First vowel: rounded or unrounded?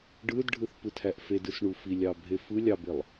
unrounded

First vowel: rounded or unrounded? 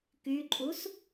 rounded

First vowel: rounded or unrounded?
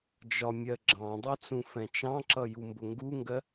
rounded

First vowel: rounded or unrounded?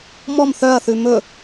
rounded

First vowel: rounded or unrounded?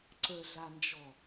unrounded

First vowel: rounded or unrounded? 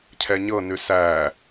unrounded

